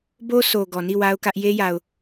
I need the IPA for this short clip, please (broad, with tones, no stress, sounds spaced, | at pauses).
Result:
b o˦ s o˨ ɡ ɔ˨ n i˦˨ w a˦ ʊ̯ k ä˦ ʔ j e˦ j a˨ ʊ̯